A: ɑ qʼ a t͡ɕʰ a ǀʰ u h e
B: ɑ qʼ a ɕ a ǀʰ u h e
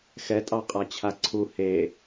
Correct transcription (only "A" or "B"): A